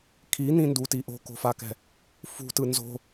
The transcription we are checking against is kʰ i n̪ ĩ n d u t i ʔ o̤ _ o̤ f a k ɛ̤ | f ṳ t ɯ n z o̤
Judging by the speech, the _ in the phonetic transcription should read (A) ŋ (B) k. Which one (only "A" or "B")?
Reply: B